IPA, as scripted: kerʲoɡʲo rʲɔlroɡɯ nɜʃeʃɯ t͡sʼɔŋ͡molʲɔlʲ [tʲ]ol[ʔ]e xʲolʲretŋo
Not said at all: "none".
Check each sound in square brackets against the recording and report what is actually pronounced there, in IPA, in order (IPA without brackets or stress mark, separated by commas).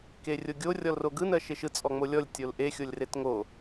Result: tʲ, ʔ